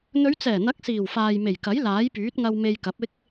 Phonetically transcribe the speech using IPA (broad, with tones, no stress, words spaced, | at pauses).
n̪ɵ˨˧ɥt͡sɛː˨˩n̪ɐ˨˥k̚ siː˨˩wfaː˨j me˨˩jkɐ˨˥j laː˨˥jpyː˨˥t̚ŋɐ˧w me˧jkɐ˨˥p̚ɪ˥k̚